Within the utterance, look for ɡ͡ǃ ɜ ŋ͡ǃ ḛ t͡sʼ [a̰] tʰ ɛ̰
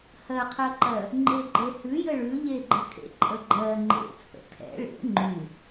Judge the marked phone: incorrect: ə̰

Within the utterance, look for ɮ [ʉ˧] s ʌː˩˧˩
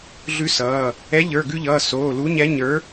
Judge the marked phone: correct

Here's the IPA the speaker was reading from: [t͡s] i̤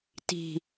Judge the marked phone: incorrect: t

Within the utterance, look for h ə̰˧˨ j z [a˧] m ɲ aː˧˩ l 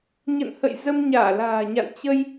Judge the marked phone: incorrect: ə˧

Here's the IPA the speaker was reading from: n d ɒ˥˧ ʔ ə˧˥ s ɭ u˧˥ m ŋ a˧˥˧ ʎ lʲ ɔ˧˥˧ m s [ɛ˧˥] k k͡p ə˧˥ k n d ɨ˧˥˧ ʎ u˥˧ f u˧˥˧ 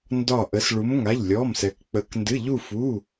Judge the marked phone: correct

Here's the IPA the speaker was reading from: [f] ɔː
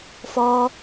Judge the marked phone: correct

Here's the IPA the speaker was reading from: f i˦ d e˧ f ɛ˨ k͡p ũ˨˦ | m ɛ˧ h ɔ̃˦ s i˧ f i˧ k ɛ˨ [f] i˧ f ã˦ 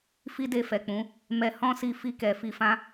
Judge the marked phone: correct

